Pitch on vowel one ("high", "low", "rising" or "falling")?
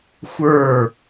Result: falling